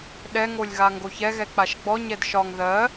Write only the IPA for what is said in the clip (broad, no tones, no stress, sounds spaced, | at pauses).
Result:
ɗ ɛ ŋ o lʲ ɣ a ŋ ɡ o ç ɛ ɣ ɛ k͡p a ʃ ɡ͡b ɔ ɲ ɛ d ʃ ɒ ŋ ð ɜ